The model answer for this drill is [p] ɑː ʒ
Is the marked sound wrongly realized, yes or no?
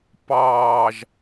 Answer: no